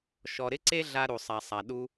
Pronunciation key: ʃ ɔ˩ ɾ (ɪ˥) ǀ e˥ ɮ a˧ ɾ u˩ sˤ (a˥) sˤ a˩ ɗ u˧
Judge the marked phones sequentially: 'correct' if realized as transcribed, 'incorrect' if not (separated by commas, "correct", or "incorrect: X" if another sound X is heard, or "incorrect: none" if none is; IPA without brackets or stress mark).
correct, incorrect: a˩